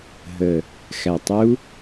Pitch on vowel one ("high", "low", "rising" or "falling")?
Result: low